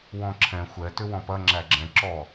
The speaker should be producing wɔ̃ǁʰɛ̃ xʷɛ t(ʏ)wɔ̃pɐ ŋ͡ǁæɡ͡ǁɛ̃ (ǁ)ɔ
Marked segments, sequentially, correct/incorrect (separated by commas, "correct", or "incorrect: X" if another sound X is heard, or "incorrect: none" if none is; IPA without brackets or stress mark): correct, correct